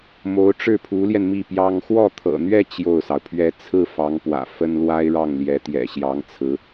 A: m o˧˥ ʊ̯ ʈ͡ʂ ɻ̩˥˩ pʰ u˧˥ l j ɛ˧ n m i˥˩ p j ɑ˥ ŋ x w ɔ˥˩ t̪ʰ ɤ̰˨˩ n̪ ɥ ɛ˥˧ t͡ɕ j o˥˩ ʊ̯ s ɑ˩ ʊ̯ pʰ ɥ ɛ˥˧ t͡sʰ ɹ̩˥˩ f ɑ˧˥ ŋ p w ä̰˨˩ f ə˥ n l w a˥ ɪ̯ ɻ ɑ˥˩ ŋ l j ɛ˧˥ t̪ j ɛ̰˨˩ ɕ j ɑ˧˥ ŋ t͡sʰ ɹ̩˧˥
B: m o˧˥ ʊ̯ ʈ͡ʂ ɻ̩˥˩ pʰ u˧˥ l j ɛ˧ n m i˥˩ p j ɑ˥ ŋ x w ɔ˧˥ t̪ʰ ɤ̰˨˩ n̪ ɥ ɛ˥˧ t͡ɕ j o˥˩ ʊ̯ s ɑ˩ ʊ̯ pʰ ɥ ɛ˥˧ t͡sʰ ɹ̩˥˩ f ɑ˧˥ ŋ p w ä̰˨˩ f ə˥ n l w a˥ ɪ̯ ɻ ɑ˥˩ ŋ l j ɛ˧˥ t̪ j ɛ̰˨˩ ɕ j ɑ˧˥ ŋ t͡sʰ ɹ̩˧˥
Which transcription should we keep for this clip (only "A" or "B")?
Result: A